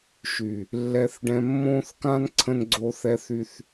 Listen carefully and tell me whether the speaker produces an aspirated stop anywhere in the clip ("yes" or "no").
yes